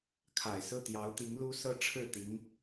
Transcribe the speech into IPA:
kʰ a˨˩ ɪ̯ s ɹ̩˥˩ t̪ j ɑ˧˥ ʊ̯ t̪ i˧˥ ŋ l u˥ s ɤ˥ ʈ͡ʂʰ ɻ̩˥˩ t̪ i˧˥ ŋ

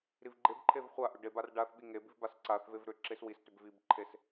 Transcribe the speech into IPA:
ɾ i v ɡ͡ǃ e b ǃʰ e v χʷ a ʔ ʏ ɖ e b a r ɖ a θ ɓ i ŋ e b i v b a s ǀ a θ v e v ɾ ʏ ǁ e s w i s t ʏ b v i b ǃʰ e s

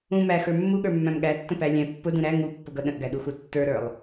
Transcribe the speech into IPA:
ũ m æ x ə˞ mː u ɠ ə˞ mː æ̃ m ɠ æ tː ə̃ p æ lʲ æ̃ pː ʊ d ũ ɾ æ ŋ u pː ʊ ɡ ʌ ɗ ə̃ ʔ ɡ æ ɗ u x u tː ə˞ ɾ ə˞ lˠ

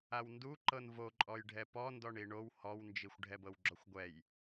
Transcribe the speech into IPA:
a w n d u ǃ ɤ n v o ǃʼ ɔ j ɖʱ ɛ p ɔ n d ɔ ɳ i ɳ o w h ɔ w n d͡ʒ i xʷ ɖʱ ɛ b ɤ w ɡ͡ǁ ɔ xʷ ɡʷ ɛ j

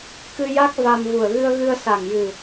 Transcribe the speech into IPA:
k ɨ˧ j a˦˥ k̚ v a˧ m v u˨˩ ə̯ ɣ ɨ˧ ə̯ ɣ ɨ˧ ə̯ s a˨˩ ŋ j ɨ˨˩

